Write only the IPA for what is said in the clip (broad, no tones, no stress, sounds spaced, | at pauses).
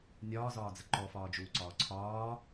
nʲ ɒː z ɒː d͡z ə ǃ ɔ f ɒː d͡ʒ uː ǀ ɒː ǀʰ ɒː